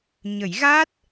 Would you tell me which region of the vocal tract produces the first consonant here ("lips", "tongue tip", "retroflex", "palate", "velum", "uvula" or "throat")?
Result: palate